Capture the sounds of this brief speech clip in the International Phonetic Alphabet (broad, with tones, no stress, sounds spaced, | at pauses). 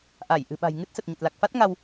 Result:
ʔ a˧˩ j ʔ ɨ̤˨˩ ɓ a̤˨˩ j ŋ ɨ˦˥ t̚ s ə˨˩ t̚ ɲ ə˨˩ t̚ l a˨˩ k̚ f a˦˥ t̚ ŋ a˧ w